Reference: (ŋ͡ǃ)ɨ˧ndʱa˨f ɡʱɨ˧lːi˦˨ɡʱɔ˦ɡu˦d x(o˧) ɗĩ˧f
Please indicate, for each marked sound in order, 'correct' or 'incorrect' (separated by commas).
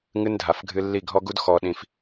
incorrect, incorrect